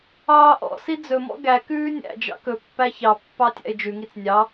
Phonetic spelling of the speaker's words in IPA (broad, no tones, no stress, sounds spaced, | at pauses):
ɑː ʔ ɔ̰ s i d͡z ɵ m ɔ̰ ɡ æ k ʉː nʲ æ̰ d͡ʒ ɑ̰ k ɵ pː æ ç ɑ pː ɑ tʲ æ̰ ɪ̯ d͡ʒ ʉ ŋ i t͡s nʲ ɑ